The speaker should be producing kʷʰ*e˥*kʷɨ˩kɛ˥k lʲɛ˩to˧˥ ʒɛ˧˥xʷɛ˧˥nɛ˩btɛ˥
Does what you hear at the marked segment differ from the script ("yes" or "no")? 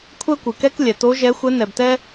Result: yes